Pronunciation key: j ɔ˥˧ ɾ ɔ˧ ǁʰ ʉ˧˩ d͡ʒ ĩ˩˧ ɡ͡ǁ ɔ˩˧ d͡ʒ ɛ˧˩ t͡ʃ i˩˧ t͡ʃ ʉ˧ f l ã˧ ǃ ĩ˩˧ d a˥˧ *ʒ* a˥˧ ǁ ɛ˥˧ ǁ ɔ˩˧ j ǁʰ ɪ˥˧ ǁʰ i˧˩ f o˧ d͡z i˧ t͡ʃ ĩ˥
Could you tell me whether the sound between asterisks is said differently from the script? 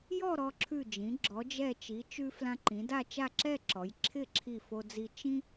yes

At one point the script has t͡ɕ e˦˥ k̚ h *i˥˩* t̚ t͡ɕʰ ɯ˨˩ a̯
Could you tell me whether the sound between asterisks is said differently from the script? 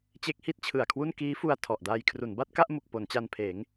no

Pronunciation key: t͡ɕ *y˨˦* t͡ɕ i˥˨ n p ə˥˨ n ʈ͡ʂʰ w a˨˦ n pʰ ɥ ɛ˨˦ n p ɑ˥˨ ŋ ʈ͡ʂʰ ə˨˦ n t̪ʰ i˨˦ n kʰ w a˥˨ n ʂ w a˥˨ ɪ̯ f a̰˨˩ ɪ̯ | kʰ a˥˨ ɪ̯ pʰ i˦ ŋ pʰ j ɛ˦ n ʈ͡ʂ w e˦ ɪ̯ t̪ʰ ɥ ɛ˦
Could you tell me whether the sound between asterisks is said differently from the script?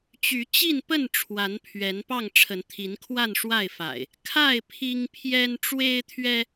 no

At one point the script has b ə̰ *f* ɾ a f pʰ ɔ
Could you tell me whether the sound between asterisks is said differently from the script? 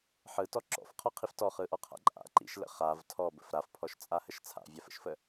no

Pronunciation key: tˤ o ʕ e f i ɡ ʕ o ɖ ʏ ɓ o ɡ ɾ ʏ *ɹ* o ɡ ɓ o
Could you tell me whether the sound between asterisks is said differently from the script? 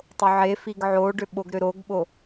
yes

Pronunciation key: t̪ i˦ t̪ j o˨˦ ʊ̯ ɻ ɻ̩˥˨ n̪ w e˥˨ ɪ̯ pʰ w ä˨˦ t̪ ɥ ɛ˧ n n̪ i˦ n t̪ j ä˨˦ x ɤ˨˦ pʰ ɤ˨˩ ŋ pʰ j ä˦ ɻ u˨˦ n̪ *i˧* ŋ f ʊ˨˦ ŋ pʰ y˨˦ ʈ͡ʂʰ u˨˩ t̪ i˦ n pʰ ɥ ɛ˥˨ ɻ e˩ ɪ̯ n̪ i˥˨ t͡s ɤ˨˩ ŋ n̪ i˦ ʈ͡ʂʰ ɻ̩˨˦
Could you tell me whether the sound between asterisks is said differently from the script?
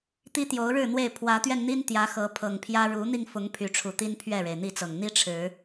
no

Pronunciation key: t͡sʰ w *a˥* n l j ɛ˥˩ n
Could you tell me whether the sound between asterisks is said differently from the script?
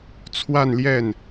yes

